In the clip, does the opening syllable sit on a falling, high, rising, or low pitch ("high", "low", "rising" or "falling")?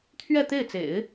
falling